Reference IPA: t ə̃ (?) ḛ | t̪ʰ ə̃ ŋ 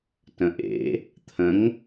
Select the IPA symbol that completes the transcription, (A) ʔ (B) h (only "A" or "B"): A